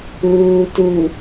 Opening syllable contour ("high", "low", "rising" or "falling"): low